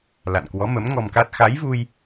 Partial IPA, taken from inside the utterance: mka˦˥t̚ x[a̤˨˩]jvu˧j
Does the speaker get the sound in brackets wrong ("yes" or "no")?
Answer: yes